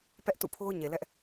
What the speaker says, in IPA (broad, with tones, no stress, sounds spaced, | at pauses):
p ɛ˦ ʔ t ṵ˦˨ pʰ o˦ ʊ̯ ɲ e˨ l ɛ˦ ʔ